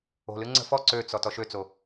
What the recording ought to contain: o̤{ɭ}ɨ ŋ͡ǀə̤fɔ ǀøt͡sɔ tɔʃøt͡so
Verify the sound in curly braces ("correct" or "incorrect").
incorrect